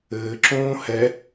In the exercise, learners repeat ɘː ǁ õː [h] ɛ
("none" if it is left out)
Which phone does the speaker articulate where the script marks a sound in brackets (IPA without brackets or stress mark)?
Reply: h